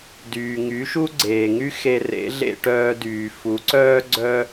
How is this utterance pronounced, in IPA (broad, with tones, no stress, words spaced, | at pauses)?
dyː˩ŋy˩˥ʃu˥ ɡ͡ǀeː˩ŋy˥ xe˧rḛ˩˥ɮḛ˧ ʈœː˧dyː˩ fu˩˥ǀœː˥ ɡ͡ǀœ˥